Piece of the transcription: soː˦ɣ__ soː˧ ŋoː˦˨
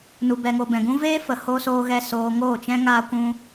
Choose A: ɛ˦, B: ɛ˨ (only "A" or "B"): A